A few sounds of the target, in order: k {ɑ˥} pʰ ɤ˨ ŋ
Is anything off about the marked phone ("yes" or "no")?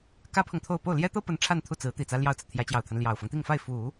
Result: yes